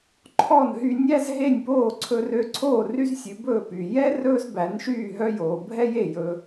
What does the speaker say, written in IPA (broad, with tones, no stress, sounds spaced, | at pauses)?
ǃʰ ɔ˥˩ n ɦ y˧ nʲ æ˥ z ɦ e˥˩ nʲ p oː˥˩ ǀʰ ɵ˧ r ø˧ ǀʰ oː˥˩ r y˥ z sʲ ʉ˩˥ b ɵː˥˩ p yː˩ j ɛ˥ r ɵː˥ z b æ˩˥ n ʃ yː˥˩ ɦ œ˥ j oː˩ bʱ ɛ˥ j e˥˩ j ɵ˧